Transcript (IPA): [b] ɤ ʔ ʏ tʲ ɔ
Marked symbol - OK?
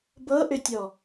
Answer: yes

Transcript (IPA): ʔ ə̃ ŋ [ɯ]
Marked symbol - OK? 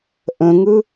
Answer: yes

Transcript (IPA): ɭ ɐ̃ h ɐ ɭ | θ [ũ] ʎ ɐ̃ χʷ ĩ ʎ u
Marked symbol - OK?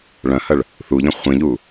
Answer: no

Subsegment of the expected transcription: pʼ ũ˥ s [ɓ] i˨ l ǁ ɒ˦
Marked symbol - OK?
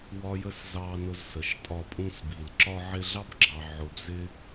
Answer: no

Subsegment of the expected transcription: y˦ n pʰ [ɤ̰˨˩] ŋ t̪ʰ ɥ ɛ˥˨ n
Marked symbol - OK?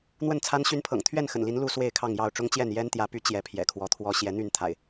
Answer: yes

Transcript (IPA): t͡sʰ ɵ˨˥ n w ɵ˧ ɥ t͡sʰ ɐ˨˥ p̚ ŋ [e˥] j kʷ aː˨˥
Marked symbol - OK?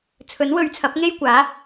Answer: yes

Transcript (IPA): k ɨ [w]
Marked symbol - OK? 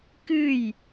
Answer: no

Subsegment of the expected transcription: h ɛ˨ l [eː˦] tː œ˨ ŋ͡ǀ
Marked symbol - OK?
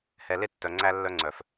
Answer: no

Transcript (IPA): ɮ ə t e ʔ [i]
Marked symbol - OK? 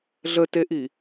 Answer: yes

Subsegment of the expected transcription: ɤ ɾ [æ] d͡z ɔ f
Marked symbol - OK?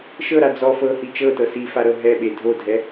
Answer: no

